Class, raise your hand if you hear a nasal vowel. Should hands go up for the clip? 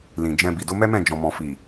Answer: yes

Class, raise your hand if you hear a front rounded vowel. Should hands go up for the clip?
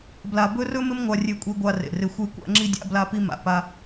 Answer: no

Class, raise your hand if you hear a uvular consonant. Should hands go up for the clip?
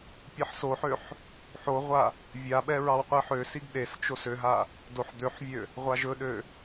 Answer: yes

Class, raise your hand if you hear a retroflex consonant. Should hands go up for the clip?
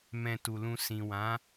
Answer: no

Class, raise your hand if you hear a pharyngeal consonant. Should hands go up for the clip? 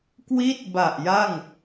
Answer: no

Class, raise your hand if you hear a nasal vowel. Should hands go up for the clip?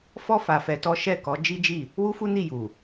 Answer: no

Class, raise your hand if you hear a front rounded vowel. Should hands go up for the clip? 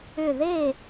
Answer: yes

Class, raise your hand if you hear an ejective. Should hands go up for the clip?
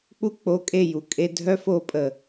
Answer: yes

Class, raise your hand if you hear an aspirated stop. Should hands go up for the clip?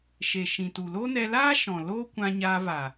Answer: no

